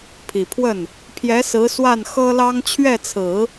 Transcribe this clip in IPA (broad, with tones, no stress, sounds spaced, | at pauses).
pʰ i˨˩ pʰ w ə˥˩ n | pʰ j ɛ˧˥ s ɹ̩˧˥ s w a˥˩ n x ɤ˥ l ɑ˥ ŋ t͡ɕʰ ɥ ɛ˥˩ t͡sʰ ɹ̩˨˩˦